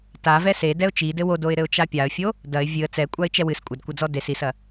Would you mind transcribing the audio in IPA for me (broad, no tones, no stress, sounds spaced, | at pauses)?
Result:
t a v ɛ s e d ɛ ʊ̯ t͡ʃ i d ɘ w o d o ɪ̯ ɾ ɘ ʊ̯ t͡ʃ a pʲ a ə̯ fʲ o | d ɐ ɪ̯ vʲ ɨ ə̯ t͡s ɛ kʷʼ a ɪ̯ t͡ʃ ɛ w ɨ s kʷʼ ɐ d kʷ ɐ d͡z ɔ d e s i s ɐ